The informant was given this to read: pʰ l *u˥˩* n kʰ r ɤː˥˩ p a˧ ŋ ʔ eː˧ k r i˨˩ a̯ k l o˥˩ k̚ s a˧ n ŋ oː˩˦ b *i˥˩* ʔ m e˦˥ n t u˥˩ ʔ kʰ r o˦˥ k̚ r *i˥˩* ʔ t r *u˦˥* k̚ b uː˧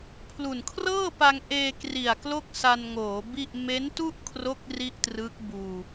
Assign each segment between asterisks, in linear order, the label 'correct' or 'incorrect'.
incorrect, correct, correct, incorrect

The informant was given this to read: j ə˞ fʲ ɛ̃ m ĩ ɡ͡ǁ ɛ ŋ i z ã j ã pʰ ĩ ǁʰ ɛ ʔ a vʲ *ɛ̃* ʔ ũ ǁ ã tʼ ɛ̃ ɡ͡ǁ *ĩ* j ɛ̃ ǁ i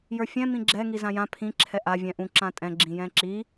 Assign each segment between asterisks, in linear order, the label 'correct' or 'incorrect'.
correct, correct

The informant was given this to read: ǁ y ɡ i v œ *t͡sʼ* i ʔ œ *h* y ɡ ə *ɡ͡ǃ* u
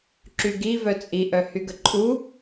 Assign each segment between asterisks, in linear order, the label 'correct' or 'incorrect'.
correct, correct, incorrect

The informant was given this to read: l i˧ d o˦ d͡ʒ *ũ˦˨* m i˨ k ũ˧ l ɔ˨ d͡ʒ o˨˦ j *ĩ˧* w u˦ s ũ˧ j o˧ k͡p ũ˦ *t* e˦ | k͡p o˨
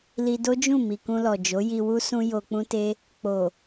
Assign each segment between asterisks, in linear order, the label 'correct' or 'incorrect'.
correct, incorrect, correct

